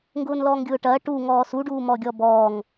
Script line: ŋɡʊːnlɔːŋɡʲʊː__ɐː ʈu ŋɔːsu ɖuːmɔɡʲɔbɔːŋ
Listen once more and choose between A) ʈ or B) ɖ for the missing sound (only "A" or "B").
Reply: A